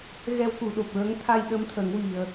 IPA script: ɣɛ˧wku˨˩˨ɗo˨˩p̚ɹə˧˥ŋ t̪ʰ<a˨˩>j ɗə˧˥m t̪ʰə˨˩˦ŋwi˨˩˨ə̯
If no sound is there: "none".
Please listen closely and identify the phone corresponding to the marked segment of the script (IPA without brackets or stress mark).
a˧